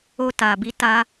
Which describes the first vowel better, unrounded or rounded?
rounded